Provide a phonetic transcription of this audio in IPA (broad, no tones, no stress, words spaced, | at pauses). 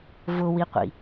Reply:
vʊwiqʷḭ